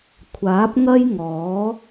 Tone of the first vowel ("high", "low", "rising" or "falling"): rising